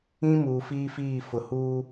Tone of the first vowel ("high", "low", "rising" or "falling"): high